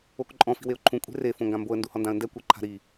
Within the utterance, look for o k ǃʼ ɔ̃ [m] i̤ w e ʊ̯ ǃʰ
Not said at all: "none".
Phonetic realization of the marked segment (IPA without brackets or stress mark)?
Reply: f